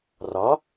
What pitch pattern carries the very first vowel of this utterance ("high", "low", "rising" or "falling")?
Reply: rising